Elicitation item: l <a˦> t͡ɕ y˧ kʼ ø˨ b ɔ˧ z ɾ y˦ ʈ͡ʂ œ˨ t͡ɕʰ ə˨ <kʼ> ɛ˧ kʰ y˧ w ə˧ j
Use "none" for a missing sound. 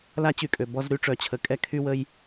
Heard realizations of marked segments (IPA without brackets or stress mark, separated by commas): a˦, kʼ